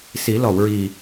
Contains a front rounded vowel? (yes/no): no